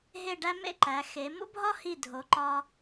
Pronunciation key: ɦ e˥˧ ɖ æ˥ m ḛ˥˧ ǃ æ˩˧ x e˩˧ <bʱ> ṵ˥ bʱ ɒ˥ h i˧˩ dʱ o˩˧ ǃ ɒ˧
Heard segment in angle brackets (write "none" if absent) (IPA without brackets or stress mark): m